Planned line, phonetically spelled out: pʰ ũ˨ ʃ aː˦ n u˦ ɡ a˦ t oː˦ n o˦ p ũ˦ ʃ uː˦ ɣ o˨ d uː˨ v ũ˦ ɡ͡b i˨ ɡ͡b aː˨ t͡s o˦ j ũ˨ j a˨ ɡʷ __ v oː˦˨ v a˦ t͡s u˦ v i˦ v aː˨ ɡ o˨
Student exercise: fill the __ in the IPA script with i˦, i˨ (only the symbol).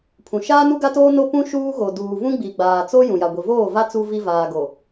i˨